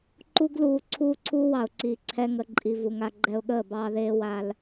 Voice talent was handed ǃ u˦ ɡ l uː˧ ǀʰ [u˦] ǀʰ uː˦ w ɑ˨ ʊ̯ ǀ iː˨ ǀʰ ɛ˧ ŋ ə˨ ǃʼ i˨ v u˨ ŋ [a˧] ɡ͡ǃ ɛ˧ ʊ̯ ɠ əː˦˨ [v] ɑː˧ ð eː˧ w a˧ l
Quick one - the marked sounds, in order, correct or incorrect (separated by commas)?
incorrect, correct, incorrect